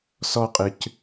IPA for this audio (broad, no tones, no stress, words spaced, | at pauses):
sɔqʼɨc